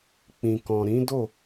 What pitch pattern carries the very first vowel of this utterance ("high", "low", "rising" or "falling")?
low